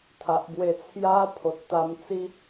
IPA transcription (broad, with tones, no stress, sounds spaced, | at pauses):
t̪ʰ a˨ ʔ b w e˧ t͡sʰ j a˦ pʰ o˨ t̚ t̪ a˧ m t͡s i˦